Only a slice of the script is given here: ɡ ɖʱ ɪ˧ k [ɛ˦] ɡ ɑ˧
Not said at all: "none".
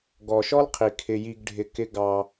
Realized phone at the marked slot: ɪ˦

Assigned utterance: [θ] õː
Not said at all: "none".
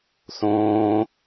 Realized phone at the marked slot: θ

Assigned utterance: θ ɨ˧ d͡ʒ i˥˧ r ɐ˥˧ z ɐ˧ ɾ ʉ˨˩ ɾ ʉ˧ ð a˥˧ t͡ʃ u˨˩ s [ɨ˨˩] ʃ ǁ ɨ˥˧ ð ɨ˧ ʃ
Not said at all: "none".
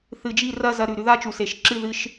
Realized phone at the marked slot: e˨˩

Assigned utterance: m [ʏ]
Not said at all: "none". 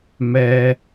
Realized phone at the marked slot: ɛ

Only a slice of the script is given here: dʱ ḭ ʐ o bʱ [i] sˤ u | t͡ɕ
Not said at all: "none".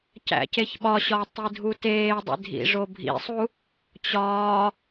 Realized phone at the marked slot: ḭ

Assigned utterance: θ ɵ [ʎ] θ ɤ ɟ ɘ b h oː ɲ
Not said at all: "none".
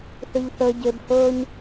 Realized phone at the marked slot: ʎ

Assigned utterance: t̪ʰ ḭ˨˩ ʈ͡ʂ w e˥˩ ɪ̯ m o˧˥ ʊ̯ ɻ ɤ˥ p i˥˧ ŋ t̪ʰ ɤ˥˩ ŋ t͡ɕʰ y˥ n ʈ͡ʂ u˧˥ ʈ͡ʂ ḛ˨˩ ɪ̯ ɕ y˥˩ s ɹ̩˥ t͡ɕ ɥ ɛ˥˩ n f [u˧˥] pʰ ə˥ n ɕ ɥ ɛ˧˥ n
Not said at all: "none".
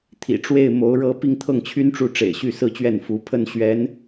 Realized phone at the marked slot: u˧˥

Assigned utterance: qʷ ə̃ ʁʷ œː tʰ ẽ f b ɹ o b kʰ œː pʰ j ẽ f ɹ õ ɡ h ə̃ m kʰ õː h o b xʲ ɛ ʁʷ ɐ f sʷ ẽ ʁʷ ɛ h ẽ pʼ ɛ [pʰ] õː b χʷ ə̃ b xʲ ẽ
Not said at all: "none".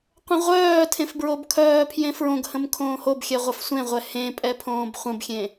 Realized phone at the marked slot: pʰ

